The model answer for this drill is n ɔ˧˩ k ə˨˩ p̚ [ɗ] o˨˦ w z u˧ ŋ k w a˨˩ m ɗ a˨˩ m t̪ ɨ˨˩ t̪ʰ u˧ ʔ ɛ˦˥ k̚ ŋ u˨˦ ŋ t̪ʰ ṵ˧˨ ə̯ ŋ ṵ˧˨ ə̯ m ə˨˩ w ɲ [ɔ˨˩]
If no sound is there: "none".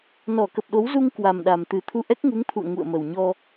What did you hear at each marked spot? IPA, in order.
ɗ, ɔ˧

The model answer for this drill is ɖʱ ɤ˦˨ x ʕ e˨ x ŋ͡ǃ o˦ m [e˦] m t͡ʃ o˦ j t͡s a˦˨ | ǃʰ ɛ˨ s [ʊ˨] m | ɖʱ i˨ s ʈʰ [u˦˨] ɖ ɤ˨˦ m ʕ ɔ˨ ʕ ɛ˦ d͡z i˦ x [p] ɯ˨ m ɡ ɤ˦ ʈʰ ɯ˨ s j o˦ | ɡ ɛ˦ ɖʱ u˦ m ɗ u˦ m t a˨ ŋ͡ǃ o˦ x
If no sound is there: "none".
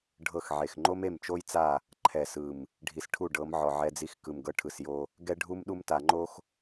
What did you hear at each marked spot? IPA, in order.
e˦˨, ɯ˨, u˦˨, k

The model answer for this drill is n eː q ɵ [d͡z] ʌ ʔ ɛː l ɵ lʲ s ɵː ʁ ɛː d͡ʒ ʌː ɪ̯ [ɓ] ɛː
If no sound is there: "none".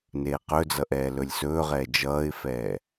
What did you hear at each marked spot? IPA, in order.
d͡z, f

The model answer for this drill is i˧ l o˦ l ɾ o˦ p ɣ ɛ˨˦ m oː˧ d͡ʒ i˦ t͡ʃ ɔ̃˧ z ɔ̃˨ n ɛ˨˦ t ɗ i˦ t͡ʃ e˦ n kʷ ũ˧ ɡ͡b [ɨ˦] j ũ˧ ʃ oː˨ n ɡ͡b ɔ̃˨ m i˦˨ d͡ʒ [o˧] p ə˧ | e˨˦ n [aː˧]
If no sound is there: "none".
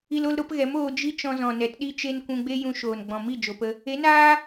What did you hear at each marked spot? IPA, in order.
e˦, o˨, aː˦

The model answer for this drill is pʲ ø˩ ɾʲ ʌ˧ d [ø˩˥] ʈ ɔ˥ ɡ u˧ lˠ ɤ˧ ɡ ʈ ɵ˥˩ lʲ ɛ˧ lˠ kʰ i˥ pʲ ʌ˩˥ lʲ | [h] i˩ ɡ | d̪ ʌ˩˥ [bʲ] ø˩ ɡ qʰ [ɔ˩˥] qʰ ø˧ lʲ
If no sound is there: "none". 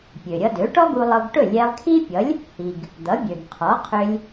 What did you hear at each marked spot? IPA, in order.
ø˩˥, h, bʲ, ɔ˩˥

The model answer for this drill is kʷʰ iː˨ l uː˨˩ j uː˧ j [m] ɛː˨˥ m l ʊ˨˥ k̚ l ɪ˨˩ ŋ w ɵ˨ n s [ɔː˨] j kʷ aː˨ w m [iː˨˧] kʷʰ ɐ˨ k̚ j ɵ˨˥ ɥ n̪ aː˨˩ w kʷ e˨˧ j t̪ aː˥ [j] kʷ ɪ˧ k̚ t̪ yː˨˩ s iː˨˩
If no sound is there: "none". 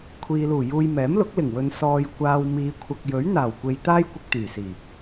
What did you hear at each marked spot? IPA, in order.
m, ɔː˨, iː˨˧, j

